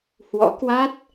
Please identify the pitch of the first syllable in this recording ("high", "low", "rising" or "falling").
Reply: rising